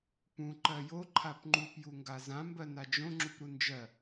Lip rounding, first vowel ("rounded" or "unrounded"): rounded